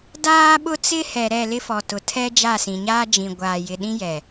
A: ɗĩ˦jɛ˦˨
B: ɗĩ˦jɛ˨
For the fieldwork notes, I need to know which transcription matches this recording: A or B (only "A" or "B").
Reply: B